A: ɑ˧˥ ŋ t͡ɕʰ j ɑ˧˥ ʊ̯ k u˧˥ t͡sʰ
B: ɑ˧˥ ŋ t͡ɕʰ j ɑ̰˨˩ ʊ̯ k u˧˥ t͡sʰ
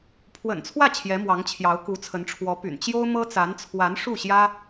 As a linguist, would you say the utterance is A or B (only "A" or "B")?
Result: A